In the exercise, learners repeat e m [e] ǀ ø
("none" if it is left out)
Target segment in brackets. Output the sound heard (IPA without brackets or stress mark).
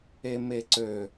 e